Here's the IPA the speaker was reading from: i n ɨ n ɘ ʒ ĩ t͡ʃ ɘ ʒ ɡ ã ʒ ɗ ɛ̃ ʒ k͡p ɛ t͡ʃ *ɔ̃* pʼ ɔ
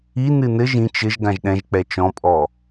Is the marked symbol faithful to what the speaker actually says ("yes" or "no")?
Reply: yes